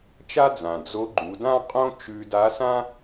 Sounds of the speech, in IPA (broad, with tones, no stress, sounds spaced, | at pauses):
t͡ʃ a˥ d͡z ã˩ d͡z o˧˥ ɡ͡ǃ u˩˧ d ã˥ qʼ õ˥ t͡ʃ ʉ˧ d a˧˥ s ã˥